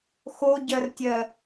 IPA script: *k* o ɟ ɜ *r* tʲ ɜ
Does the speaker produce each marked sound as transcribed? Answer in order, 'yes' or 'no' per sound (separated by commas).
no, yes